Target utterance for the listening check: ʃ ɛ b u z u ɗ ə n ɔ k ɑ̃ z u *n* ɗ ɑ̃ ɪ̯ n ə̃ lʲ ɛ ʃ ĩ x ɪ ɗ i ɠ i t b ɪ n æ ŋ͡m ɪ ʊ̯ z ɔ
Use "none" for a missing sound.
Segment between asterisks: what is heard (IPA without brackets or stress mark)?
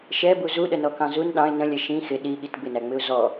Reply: n